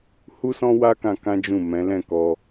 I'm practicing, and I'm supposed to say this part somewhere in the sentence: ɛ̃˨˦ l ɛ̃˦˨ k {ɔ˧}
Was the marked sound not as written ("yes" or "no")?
no